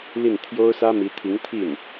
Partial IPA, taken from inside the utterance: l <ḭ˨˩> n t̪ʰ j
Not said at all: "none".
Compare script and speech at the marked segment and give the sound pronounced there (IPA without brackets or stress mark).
i˥˩